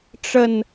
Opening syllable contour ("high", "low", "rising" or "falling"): falling